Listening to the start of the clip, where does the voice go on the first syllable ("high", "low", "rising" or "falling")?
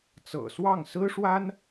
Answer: low